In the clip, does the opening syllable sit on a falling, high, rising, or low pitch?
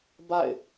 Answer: falling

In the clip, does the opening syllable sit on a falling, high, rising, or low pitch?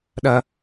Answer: high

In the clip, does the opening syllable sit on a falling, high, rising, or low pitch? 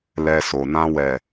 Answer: low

